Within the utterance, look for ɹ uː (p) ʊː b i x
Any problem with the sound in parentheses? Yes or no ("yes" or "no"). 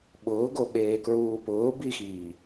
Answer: no